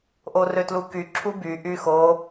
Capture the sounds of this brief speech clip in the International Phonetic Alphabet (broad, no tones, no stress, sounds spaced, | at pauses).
ʔ o r ø t l u k y ǁʰ u b y ʔ y x o